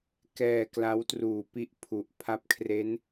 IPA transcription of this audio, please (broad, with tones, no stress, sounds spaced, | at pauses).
k ɛː˧ k l a˦˥ w t r uː˨˩ p i˥˩ ʔ pʰ u˨˩ ʔ pʰ a˥˩ p̚ kʰ r e˦˥ n